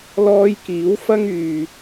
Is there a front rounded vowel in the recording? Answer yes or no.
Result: yes